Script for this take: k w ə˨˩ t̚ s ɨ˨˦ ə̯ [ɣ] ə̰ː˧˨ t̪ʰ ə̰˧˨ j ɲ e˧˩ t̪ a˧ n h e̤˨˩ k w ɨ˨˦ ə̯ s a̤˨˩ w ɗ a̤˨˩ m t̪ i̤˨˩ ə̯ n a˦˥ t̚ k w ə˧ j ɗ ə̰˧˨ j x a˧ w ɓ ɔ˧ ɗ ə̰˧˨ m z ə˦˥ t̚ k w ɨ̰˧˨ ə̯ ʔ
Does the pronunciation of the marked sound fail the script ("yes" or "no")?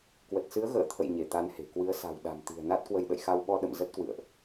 no